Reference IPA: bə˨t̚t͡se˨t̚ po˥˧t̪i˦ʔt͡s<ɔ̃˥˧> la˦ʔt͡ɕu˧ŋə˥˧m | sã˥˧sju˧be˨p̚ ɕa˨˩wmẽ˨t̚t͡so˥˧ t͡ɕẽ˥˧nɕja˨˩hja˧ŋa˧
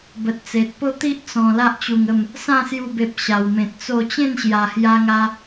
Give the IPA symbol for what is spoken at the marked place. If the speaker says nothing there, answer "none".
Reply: ɔ̃˨˩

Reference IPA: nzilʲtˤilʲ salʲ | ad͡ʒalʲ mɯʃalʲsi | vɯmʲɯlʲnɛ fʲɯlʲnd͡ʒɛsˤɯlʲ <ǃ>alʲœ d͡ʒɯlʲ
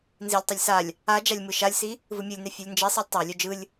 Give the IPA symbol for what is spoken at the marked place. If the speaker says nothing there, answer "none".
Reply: tˤ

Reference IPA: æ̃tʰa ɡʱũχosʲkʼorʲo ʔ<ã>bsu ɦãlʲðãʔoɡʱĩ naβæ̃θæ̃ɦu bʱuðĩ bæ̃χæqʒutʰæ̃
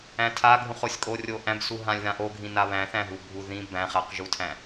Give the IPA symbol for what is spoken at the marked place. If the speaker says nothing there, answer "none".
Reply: æ̃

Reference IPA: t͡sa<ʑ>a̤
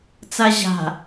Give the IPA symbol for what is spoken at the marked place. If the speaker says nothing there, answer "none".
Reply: ʑ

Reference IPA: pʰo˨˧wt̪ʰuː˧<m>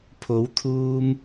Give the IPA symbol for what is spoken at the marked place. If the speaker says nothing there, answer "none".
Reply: m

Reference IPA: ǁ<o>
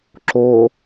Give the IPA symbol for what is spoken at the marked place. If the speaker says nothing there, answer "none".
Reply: o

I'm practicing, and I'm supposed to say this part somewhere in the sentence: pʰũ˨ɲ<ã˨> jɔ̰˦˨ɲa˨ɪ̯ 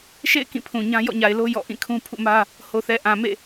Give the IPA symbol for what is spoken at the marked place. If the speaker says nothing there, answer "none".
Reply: ã˦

